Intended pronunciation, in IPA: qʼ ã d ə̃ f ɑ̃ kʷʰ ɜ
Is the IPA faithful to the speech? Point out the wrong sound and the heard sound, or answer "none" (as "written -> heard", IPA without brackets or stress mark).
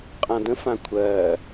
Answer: ɑ̃ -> ã